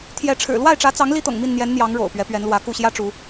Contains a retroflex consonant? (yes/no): yes